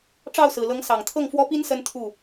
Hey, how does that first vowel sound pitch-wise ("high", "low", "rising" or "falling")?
falling